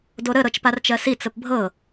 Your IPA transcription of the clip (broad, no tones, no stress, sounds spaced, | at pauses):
d o ɾ ə ɾ ɤ t͡ʃ p a r t͡ʃ ɜ s i t͡s ə p bʱ ɤ